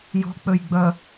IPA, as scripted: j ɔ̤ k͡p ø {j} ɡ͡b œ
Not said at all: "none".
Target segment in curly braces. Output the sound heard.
j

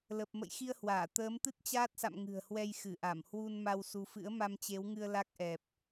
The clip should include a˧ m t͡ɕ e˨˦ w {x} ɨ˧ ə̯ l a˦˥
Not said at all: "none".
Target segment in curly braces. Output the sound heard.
ŋ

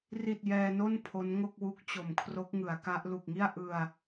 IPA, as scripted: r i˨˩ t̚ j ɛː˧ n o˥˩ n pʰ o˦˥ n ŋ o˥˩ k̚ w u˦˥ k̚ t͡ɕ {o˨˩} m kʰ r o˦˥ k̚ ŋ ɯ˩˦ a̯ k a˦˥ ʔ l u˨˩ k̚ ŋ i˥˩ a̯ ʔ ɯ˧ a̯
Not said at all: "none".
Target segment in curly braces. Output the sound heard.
o˨˩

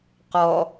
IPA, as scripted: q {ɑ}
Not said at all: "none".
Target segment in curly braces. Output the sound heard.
ɔ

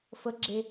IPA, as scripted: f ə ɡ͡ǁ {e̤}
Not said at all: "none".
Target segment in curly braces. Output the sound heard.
e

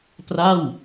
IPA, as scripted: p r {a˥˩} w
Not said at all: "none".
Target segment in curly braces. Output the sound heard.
a˥˩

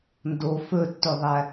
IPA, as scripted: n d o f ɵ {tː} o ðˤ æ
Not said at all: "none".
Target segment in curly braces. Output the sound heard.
tː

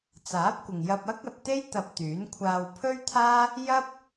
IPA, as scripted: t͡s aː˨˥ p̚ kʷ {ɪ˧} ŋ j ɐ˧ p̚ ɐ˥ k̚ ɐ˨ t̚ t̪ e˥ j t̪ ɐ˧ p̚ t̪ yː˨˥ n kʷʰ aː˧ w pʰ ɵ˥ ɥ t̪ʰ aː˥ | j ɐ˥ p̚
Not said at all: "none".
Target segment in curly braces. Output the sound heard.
ɪ˨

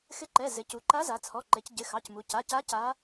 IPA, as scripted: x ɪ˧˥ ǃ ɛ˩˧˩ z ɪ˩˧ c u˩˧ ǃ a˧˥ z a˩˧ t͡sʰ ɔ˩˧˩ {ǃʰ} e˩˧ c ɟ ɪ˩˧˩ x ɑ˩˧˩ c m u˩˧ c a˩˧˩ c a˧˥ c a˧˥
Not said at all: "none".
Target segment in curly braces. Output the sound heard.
ǃ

